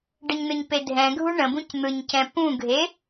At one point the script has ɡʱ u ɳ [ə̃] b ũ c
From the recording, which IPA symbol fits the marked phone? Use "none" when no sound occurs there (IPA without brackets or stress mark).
ə̃